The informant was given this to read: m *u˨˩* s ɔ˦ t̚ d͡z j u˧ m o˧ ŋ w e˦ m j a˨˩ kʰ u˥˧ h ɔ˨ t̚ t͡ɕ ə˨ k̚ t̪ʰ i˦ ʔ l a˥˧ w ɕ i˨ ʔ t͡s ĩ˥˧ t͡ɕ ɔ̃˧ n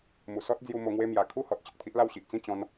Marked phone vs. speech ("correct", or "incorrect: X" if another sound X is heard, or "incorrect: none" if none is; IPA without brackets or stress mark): correct